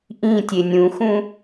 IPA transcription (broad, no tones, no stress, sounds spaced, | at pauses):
ʔ ĩ tʲ e nʲ ũ x ũ